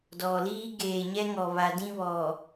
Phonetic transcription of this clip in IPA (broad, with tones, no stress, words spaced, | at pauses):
dɔ˨liː˦ ɡeː˨ɲɛ˦ŋɔ˨ βa˨dĩ˦βɔ˨